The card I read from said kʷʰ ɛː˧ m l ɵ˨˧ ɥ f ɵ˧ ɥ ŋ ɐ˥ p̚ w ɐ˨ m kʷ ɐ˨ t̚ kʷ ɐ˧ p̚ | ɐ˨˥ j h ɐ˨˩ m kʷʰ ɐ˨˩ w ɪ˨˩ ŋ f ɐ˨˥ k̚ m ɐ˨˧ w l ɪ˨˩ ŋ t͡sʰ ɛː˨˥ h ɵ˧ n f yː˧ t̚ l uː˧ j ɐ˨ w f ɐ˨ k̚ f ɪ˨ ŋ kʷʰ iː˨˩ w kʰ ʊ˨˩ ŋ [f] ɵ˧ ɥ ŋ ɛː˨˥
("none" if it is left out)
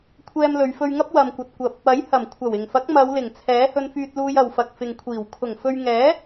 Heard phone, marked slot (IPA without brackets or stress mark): f